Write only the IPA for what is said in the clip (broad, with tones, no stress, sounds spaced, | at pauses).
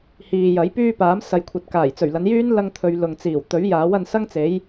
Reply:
h iː˨ j ɐ˨˥ j p yː˥ p aː˨˥ m s ɐ˨ j kʷʰ ɐ˨ t̚ k aː˨˩ j t͡s ɵ˨˩ ɥ l ɐ˨˧ n j yː˥ n l ɐ˥ ŋ t̪ʰ ɵ˧ ɥ l ʊ˨ ŋ t͡s iː˨˩ w t̪ ɵ˨˥ ɥ j aː˨˥ w ɐ˧ n s ɐ˥ ŋ t͡s e˨˥ j